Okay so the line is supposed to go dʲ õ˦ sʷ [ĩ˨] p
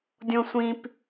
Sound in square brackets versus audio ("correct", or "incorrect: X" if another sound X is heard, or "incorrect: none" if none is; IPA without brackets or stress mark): incorrect: ĩ˦